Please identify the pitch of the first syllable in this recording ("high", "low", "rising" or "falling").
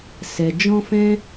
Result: low